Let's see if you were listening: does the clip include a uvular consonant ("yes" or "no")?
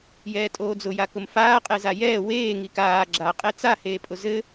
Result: yes